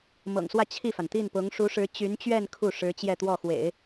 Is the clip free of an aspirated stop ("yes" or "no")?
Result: no